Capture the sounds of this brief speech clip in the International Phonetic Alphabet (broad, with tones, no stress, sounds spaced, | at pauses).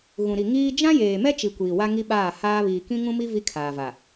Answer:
ɣ ũ˨ ɾ i˨ ŋ iː˦ d͡ʒ ã˦ j eː˨ m ɛ˦ t͡ʃ i˨ kʷ iː˨ w a˦ ŋ i˦ ɓ aː˦˨ h aː˦ β iː˨ k ĩ˦ ŋ ũ˦ m i˦ v i˦ kʰ aː˨ v a˨